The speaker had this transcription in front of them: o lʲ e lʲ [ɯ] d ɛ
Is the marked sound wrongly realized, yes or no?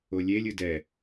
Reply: no